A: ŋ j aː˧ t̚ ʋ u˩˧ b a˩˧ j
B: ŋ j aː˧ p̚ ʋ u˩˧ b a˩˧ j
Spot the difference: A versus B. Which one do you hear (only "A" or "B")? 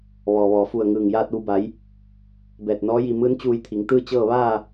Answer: A